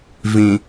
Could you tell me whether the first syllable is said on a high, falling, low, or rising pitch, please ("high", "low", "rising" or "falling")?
low